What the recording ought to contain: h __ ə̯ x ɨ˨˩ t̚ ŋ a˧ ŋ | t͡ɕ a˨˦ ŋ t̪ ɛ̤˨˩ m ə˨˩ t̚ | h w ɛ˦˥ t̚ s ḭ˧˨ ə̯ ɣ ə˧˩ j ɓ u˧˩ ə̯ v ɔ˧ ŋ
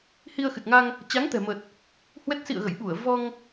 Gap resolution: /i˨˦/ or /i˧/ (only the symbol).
i˧